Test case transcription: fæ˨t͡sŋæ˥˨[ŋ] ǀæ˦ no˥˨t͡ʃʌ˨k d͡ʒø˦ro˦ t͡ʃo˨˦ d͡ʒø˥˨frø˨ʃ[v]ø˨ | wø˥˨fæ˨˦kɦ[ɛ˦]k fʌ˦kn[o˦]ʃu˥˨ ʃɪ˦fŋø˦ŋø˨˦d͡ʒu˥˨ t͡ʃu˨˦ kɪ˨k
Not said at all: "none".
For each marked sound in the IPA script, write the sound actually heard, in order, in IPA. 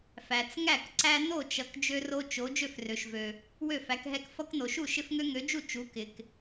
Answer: k, v, ɛ˦, o˨

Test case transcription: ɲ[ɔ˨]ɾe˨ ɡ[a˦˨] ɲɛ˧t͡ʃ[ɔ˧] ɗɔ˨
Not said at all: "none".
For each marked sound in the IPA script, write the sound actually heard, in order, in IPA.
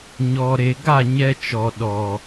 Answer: ɔ˨, a˦˨, ɔ˨

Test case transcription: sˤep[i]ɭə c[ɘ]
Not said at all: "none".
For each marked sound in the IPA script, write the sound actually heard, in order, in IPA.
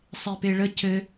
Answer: e, ɘ

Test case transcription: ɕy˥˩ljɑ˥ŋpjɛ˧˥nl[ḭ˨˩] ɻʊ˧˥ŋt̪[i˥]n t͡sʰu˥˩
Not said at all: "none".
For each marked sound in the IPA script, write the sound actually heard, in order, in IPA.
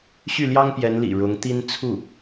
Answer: ḭ˨˩, i˥

